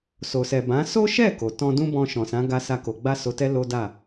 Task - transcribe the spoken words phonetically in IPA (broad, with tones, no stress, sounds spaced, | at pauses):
s o˨ s ɛ˨ b ã˨˦ s o˦ ʃ ɛ˦˨ k o˨ t ɔ̃˧ d ũ˦ b ɔ̃˧ ʃ ɔ̃˨ s ã˨˦ ɡ a˧ s a˦ k o˧ ɡ͡b a˦ s o˧ t ɛ˦ l o˦ d a˦˨